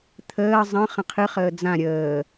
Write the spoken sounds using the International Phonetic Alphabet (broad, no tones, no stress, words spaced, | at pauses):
t̪ʰəː zˤə̃ χə̃qʰɨ χəːd͡zã ɾʲəː